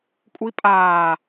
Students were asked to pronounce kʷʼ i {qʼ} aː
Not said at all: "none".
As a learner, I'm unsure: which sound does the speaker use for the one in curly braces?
pʼ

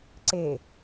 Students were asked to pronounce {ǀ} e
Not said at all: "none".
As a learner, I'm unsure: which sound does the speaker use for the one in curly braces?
ǀ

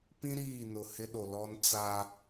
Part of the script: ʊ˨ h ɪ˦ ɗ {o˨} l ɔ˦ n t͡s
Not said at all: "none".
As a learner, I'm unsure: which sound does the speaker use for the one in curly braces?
o˨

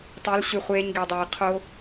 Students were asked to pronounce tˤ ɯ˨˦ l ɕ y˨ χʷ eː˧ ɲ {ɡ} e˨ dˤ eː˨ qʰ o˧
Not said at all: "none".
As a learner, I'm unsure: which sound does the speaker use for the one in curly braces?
ɡ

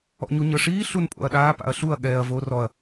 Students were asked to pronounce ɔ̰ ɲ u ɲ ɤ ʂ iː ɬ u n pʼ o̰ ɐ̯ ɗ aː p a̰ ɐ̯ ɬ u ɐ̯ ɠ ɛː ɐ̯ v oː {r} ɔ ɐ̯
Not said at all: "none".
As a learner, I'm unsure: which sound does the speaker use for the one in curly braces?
r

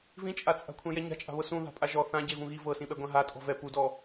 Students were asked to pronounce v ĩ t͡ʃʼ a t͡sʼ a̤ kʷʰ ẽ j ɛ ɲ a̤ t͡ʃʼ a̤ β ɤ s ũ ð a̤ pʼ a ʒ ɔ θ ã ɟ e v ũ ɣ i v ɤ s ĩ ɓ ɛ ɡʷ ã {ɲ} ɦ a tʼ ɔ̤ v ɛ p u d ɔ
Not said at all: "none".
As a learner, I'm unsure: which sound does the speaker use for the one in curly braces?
none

